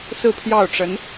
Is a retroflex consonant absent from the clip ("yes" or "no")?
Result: no